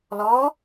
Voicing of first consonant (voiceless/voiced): voiced